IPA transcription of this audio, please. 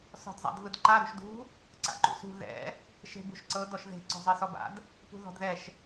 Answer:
sɔ̤dzˤa̰dvɯdǃa ɾṳʃdṳ | ǀa̰ǃṵsṳ ðɛ̰ | ʃe̤bṳʃǀɤ dɔʃðe̤ ǀɔ̤zˤesɔba̰d | pṳðɔ̤dðɛʃ

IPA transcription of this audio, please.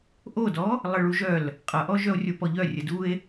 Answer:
ʔodɔ | lˠəɭuʒœl | qʼʌʔɔ ʒœo̯rʲopɔʎœ rʲədue̯

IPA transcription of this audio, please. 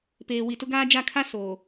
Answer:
peː˨wi˨tʊ˦ɡaː˦ d͡ʒa˦˨kʰa˦ soː˨

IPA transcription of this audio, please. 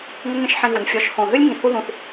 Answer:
ŋɘ˦ŋẽ˦ʃħĩ˧ɣu˨n fʲɔ˧ʃ hõ˨ɦɨ˦lʲ ŋĩ˧ hu˦ðũ˧θ

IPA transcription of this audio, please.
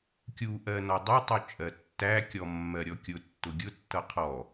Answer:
kʲu ʔɜnɔdˤʌtˤu t͡ʃʼɜtːækʲɔ mːɜɾʲɔkʲʊtːʊ ɡʲʊtːʌ qʰɔ

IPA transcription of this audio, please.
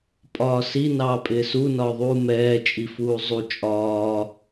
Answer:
pʼɒːsi nɑːpʼɪːsu nɒːðˤuː mɛː t͡ʃʼifuːzˤu t͡ʃʼɒː

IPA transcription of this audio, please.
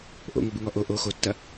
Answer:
ʔo̰ŋobɪŋɔ ʔo ʔo xotːɐ

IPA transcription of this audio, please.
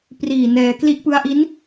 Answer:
priː˨˩ nɛː˧ kli˦˥ʔpɯ˦˥a̯ʔi˦˥n

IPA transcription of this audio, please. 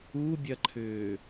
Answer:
ubʲɐǃʰʏː

